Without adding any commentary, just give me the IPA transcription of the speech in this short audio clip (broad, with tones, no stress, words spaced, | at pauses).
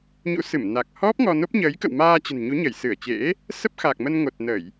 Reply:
ɲṵ˧˥sɨ˧˩m na˨˩k̚ hɔ˦˥p̚ŋɔ˧no˦˥p̚ ɲəː˨˦jkə̰˧˨wmaː˧ t͡ɕə̤˨˩nɲu˨˦ɲə˧˩j sɨ˧˩ə̯t͡ɕḛ˧˥ | sə˦˥p̚xa˨˩k̚mə˧n ŋo˨˩t̚nə˧˩˨j